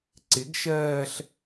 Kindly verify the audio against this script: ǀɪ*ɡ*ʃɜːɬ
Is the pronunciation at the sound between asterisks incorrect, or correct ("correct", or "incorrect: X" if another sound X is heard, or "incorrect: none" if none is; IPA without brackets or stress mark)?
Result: correct